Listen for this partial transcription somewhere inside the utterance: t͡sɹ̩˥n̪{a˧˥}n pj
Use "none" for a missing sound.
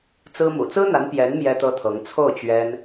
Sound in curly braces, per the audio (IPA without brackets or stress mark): a˧˥